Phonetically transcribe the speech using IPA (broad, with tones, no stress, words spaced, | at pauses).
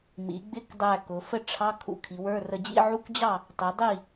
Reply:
mḭ˩˧ɡ͡bɪ˧˥˧kdˤæ˧˩ kʊ˩˧fə˥˨ʈ͡ʂʰɑ˧˥˧ kʰṵ˧kʰi˩˧wə˞˧˥˧rə˧ d͡ʑḭ˧˥˧ʕu˧˥˧kʷd͡ʑɑ˥˨ | tˤɪ˩˧ dˤi˥˨